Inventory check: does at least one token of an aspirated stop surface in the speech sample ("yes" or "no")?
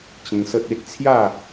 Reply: yes